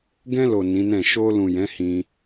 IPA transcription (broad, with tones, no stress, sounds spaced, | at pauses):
ɡ ɛ̃˧ l o˨ n ĩ˨˦ n ɛ̃˦˨ ʃ o˧ l ũ˨ j ɛ̃˨˦ h ĩ˧